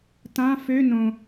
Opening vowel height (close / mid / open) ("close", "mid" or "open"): open